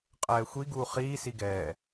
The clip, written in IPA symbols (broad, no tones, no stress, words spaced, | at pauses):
qʼɛːxʷi ɡuːχiː siɡɛː